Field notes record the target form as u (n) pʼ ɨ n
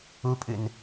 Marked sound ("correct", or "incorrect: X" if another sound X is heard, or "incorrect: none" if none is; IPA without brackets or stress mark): incorrect: none